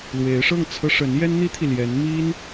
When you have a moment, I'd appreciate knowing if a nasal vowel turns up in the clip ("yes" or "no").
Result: no